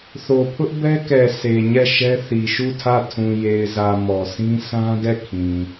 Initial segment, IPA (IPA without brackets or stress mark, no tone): θ